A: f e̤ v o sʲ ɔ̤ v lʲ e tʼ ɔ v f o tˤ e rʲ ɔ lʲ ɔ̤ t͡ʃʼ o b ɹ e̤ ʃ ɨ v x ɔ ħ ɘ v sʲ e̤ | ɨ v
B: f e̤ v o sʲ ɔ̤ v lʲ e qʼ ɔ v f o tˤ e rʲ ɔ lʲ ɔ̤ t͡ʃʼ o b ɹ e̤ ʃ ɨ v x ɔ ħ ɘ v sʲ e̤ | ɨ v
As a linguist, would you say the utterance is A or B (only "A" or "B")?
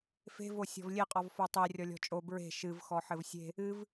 B